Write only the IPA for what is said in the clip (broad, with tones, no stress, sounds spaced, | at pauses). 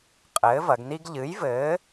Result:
qʼ ɘː˨˥ v ɐ˩˧ ɡ n i˥ ɡ ʎ ɨ˨˥ j v ɘː˨˥